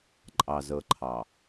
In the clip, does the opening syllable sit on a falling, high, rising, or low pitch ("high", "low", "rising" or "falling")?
low